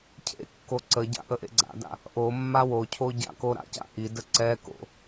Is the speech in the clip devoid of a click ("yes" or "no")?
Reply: no